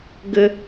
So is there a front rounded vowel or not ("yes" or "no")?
no